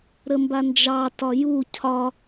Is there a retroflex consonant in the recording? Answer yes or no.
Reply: no